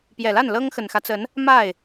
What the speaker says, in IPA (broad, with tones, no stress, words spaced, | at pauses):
pjɛ˨˩la˥˩n lɤ˥ŋxə˨˩nxä˦t͡sə˧˥n | ma˥˩ɪ̯